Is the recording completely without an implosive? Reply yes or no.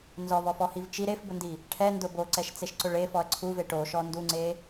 yes